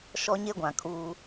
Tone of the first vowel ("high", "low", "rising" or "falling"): high